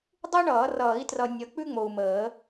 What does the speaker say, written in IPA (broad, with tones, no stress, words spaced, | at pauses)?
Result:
dˤu˥ɳʌː˨˩˦ rʌː˨˩˦i̯trʌ˨ nʲʌ˨˦k͡pʉ˥ŋ͡mo˨u̯məː˨˩˦